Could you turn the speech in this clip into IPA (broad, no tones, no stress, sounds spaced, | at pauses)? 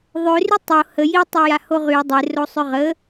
ðˤ ø r y tˤ o h ə j i tˤ ø j a h o ʁ y dˤ e r o sˤ ø ʁ ə